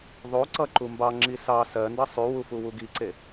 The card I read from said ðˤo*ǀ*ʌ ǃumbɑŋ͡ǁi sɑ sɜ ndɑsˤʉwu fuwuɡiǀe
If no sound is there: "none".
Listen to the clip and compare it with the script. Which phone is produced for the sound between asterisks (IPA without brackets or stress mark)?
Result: ǀ